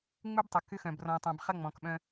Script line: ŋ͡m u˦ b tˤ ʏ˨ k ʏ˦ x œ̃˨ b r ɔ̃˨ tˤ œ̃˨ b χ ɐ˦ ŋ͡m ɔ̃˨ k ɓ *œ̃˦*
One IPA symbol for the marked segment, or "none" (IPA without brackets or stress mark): œ̃˦